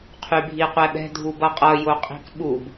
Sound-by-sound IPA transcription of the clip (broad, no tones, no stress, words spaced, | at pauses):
qʰybʱiqʷɛɓɛ̤ dʱubʌqʼʌ joqʼi̤kɓub